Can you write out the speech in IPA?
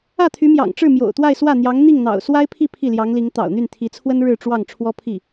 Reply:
ä˥˩t̪ʰy˧˥mjɑ̰˨˩ŋʈ͡ʂɻ̩˥˩ mjo̰˨˩ʊ̯t̪wa˥˧ɪ̯ swä˥˩n̪jɑ˧˥ŋ n̪i˥˩ŋn̪ɑ̰˨˩ʊ̯ swa˥ɪ̯pʰi˥˧ pʰi˥˩ljɑ˧˥ŋli˧˥ŋ t̪ɑ̰˨˩ʊ̯n̪y˥˩nt̪ʰi˧˥t͡sʰwə˥n ɻɻ̩˥˧ʈ͡ʂwɑ˥˩ŋ ʈ͡ʂʰwɔ˥pʰi˥˩

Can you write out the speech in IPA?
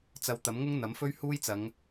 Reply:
t͡sɐ˧wt̪ɐ˨˥mŋʊ˥ŋ n̪ɐ˨˥mfɵ˥ɥhuː˥jt͡sɐ˨˧ŋ

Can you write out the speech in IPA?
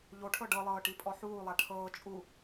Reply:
ʎoʈʰɤ ɖɤlˠɤːʈipʼɔ ħuːlˠa ʈʰɤː t͡ʃʼu

